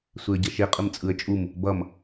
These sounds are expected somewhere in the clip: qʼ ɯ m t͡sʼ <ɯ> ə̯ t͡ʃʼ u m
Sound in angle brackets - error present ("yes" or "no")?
no